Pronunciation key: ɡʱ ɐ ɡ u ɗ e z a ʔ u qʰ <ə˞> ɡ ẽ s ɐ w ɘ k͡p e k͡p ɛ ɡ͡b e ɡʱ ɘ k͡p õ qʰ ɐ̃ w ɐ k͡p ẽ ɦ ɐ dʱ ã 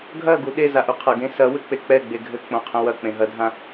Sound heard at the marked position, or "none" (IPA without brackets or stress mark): ɐ